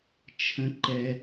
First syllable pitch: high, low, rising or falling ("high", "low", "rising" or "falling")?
high